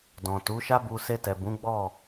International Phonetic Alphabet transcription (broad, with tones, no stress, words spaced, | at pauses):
dɔ̃˨tu˨˦ʃa˦ bu˧ se˧tɛ˨bũ˨˦ ɡ͡bɔ˦˨